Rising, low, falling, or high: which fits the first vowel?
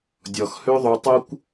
low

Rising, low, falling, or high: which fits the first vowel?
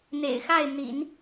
low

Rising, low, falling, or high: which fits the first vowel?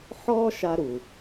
high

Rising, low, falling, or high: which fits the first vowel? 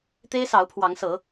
high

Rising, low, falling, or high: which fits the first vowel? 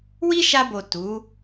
high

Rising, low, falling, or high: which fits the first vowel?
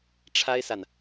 high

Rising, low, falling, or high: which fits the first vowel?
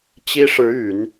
high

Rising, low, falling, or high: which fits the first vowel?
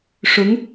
rising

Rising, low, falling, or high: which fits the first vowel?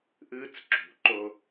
high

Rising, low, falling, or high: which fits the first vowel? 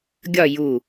falling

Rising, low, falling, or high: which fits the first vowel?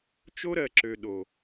high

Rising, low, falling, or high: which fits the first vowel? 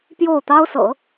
falling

